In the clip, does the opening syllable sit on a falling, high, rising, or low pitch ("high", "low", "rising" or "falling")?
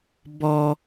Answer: high